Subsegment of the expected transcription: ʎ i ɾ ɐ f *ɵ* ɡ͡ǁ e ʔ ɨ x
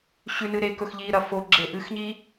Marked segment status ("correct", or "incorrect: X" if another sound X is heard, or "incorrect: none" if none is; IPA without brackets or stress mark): incorrect: o